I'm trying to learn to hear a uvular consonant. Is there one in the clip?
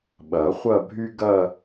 yes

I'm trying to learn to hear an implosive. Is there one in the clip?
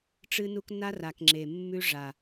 no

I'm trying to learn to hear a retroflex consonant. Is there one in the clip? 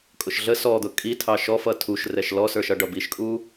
yes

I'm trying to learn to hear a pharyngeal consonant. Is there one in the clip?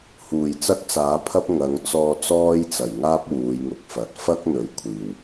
no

